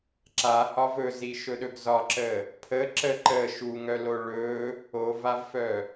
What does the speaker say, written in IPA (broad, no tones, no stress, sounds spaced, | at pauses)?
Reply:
ǁ a h ɒ v ɵ z i ʃ ɵ ɗ ɵ ɡ z ɒ ǁ ə | pʰ ə ǁ ə ǃ ə ʃ u ŋ œ l o ɭ ɵ | o v a v f œ